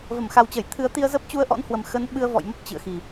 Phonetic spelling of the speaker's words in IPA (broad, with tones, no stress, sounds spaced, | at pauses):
v ə˧˩ m x a˨˩ w t͡ɕ ə˧˩ j t̪ʰ ɨ˨˦ ə̯ t̪ i˧ ə̯ z ə˦˥ p̚ t͡ɕ u˧ ə̯ ʔ ɔ̰˧˥ n h w ə˨˩ m x ə˨˦ n ɓ ɨ˧ ə̯ v ɔ̰˧˨ j m ə˦˥ p̚ t͡ɕ ɨ̰˧˨ ə̯ x i˨˩